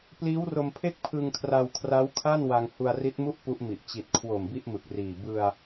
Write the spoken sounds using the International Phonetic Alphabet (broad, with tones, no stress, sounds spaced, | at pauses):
p l iː˦˥ w r o˧ m pʰ e˥˩ k̚ pʰ ɯ˧ ŋ kʰ r a˧ w kʰ r a˦˥ w kʰ a˥˩ n w a˧ ŋ h u˧ a̯ r i˦˥ t̚ m u˥˩ ʔ p u˦˥ ʔ m i˨˩ ʔ t͡ɕ i˨˩ t̚ kʰ w o˨˩ m b i˥˩ ʔ m ɯ˨˩ k̚ r iː˨˩ b ɯ˧ a̯